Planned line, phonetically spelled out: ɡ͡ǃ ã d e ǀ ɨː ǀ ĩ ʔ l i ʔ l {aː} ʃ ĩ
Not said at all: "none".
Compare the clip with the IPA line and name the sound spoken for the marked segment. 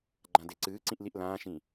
ãː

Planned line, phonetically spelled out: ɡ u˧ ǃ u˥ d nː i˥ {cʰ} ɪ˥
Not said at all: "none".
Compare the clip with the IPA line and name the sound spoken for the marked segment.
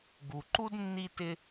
t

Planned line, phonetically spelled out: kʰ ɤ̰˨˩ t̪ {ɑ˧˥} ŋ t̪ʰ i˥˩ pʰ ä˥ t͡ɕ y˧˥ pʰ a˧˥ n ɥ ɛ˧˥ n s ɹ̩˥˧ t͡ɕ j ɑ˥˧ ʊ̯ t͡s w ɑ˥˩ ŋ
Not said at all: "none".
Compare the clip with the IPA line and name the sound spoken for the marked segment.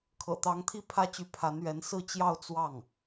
ɑ˧˥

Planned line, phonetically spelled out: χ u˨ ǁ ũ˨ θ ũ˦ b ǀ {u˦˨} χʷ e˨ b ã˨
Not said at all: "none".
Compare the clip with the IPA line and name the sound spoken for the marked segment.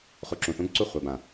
u˦˨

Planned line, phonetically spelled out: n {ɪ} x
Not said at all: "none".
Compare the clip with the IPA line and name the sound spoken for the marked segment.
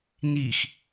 i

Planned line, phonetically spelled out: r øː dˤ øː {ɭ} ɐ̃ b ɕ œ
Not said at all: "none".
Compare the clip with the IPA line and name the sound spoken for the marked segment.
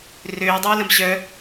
l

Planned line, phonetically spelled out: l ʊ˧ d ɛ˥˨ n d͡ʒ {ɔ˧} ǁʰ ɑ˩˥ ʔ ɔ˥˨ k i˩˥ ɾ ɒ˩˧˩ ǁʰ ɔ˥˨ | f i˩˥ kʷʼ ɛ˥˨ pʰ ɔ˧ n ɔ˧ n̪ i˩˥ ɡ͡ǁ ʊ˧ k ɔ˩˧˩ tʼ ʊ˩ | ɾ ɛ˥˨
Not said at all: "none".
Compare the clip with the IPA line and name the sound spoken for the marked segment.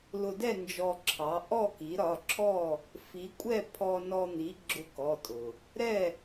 ɔ˧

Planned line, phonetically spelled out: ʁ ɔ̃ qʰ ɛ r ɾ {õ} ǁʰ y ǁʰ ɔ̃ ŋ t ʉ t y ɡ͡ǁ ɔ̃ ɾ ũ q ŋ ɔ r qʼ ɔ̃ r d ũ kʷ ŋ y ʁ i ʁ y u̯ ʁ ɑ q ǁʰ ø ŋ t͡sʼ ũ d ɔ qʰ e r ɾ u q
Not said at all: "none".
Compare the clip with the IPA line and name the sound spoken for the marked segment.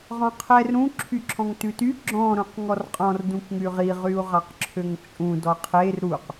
ũ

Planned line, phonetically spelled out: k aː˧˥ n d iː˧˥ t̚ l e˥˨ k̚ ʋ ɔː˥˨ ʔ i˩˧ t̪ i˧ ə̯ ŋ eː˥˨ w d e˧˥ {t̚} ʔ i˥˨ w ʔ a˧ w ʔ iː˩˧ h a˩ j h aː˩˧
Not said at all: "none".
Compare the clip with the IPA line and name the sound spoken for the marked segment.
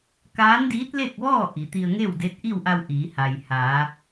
t̚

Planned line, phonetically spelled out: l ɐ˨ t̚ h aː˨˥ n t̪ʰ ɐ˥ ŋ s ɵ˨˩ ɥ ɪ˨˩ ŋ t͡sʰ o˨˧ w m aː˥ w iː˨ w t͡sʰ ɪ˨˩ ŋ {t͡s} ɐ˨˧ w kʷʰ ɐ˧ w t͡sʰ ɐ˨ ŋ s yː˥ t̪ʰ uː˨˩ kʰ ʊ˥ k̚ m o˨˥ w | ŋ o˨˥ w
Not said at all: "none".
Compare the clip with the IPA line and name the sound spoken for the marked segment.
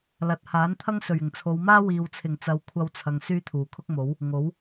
t͡s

